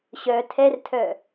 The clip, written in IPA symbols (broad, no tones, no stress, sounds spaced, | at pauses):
ɕ œ tʰ ɛ r tʰ œ